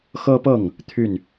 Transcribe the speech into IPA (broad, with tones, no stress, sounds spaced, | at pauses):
x ɤ˥ p ɤ˥˩ ŋ | t̪ʰ y˥˩ n